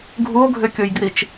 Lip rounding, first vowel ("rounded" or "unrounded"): rounded